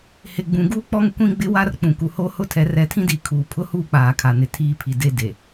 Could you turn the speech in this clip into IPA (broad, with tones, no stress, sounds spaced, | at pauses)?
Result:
h ɪ˨ ɡ͡b ũ˨ ɡ uː˦ k͡p ɔ˦ ŋ kʷ ĩ˦ ɡ͡b ɪ˦ w a˦ r k͡p ũ˨ k u˨ h o˦ h ʊ˦ tʰ ɛ˨˦ r ɛ˨˦ tʰ ĩ˦ d iː˨ kʰ uː˨ pʰ ʊ˦ h uː˦˨ k͡p aː˨ kʰ a˨ n ɪ˨ tʰ iː˦ pʰ i˨ d e˦ d e˨